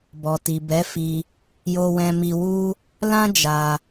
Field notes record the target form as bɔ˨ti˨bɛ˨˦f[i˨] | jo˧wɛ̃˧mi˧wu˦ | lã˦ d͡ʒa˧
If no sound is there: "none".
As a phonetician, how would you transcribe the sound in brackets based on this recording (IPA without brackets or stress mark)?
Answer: i˧